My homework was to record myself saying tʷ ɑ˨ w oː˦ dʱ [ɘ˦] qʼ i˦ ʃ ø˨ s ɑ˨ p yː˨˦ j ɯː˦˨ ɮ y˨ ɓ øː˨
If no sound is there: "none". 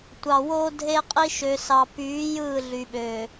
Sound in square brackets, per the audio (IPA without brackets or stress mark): e˦